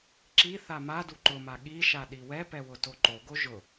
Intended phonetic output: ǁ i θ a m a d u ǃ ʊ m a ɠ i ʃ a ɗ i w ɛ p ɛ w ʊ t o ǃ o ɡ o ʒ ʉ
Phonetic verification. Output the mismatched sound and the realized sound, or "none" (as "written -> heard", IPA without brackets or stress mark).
ʉ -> ʊ